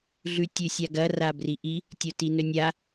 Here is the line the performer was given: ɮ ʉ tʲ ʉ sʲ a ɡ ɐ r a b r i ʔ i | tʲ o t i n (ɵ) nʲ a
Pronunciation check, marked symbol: correct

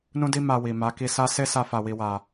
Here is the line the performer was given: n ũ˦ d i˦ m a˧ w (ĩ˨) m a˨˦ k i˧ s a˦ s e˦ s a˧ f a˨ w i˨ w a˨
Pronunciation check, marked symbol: incorrect: i˨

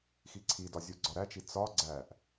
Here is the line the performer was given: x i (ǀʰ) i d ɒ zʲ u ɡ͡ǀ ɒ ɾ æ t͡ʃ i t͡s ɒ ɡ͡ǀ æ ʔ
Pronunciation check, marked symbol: correct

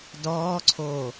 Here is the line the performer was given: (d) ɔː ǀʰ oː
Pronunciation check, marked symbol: correct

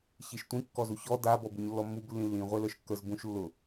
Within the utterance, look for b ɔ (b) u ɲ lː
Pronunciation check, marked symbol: correct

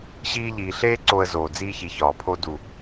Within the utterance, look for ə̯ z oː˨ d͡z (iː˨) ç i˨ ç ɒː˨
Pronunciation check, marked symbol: incorrect: iː˧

